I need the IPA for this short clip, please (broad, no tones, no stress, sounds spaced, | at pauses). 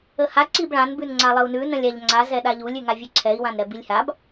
ə h a ǀ i b ɭ ã n b ʉ n ŋ͡ǀ a lˠ ə u̯ n ʉ n ə̃ lʲ a ʎ ŋ͡ǀ a z ɛ ɗ a ʎ u lʲ ʉ ŋ a vʲ ʉ ǀʰ ɛ i̯ w ã n ɾ ɛ b i lʲ h a b